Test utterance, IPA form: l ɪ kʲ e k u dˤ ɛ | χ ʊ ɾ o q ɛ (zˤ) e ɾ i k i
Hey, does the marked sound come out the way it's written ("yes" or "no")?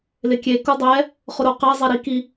yes